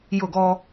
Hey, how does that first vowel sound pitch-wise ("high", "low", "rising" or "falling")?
falling